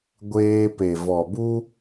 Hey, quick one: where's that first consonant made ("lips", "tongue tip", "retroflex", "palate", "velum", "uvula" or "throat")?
velum